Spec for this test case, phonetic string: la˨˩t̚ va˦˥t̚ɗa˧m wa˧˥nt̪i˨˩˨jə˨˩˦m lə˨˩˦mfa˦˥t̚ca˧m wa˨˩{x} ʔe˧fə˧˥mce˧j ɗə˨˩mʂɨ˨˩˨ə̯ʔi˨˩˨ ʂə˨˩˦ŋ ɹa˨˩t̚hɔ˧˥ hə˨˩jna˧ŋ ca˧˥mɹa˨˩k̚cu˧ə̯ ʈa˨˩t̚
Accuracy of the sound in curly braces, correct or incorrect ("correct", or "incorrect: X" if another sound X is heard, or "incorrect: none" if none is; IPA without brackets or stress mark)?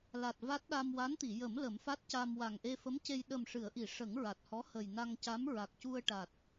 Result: incorrect: ŋ